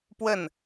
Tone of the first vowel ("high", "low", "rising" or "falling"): falling